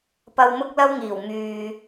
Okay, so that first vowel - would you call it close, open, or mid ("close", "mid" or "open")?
open